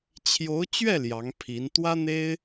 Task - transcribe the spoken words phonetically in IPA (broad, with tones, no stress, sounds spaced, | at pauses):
t͡ɕʰ j o˧˥ ʊ̯ t͡ɕ ɥ ɛ˥˩ l j ɑ˧˥ ŋ pʰ i˧˥ n t̪ w ä˥ n̪ e˥ ɪ̯